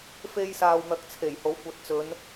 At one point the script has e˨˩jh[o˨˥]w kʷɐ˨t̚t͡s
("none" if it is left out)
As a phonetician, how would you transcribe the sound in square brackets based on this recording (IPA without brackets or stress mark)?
o˨˥